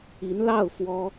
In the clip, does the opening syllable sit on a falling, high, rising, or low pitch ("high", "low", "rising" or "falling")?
rising